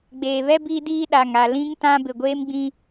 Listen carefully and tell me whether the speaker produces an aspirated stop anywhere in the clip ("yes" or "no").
no